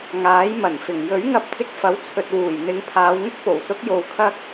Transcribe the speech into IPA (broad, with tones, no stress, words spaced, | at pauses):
ŋaː˨˥jmɐ˨˩nfɪ˨˩ŋ jɵ˨˥ɥŋɐ˧p̚ t͡sɪ˧k̚fɐ˨˥wt͡sʰɵ˨t̚wuː˨˩j n̪ɪ˨˧ŋpʰaː˨˧wŋʊ˥k̚po˨˩w sʊ˨˥k̚jo˨wkʰɐ˧k̚